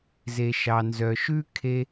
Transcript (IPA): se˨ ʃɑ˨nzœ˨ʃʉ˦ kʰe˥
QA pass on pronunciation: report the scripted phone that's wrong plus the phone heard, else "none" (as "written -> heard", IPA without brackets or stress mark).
s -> z